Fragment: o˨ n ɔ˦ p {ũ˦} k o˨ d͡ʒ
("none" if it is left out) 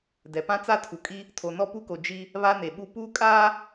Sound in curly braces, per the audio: u˦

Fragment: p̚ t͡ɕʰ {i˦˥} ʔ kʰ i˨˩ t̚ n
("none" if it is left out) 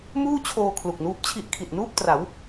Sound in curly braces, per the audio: i˦˥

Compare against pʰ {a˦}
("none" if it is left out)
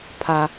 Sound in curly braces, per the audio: a˦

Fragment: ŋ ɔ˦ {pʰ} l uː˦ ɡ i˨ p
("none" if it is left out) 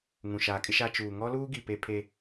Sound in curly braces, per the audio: none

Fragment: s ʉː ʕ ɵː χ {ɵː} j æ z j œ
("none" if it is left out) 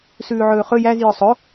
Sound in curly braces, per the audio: ɵ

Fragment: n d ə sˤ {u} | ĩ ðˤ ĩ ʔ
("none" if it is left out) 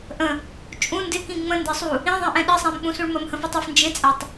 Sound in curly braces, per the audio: u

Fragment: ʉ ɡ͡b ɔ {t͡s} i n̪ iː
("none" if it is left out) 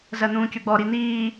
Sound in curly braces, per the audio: ɾ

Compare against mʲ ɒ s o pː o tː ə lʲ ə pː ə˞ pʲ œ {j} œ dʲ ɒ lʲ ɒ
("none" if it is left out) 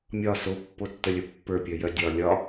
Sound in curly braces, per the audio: j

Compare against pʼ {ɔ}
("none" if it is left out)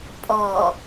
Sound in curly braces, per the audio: ɔ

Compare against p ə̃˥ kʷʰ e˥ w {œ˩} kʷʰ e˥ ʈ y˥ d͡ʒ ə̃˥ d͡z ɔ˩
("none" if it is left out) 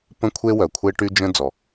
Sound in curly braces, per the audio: œ˩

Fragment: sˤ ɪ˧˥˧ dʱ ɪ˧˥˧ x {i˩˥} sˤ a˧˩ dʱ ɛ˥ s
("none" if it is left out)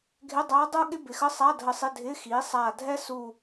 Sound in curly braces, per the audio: i˩˥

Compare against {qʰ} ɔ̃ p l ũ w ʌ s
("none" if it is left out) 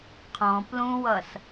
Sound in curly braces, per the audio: qʰ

